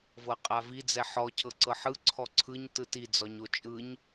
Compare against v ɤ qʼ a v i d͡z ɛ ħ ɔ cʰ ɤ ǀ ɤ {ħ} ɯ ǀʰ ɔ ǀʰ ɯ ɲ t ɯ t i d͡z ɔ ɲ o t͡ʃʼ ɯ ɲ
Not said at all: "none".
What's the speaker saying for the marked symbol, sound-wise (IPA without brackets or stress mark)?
ħ